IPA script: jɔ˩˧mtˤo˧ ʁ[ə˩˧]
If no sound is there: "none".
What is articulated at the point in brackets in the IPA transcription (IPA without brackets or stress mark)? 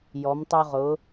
ʊ˩˧